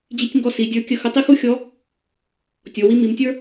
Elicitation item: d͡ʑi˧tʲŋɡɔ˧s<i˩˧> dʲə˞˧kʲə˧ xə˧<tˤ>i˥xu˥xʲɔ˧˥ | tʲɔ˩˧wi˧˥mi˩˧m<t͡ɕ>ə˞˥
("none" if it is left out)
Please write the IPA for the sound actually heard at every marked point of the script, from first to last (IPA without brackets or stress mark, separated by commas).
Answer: i˩˧, tˤ, tʲ